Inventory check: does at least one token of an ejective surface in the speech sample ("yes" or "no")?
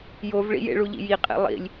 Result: yes